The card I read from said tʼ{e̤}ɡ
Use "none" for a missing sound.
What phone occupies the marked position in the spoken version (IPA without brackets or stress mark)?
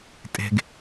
e̤